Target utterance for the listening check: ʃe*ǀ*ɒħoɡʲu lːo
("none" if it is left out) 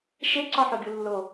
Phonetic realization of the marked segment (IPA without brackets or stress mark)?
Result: ǀ